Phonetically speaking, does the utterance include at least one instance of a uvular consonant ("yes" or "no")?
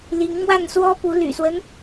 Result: no